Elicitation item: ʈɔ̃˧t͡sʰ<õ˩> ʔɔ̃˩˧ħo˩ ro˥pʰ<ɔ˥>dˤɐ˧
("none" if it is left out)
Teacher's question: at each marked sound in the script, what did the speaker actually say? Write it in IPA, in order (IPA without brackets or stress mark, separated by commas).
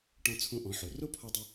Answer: õ˧, ɔ˧